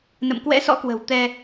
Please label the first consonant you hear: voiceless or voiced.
voiced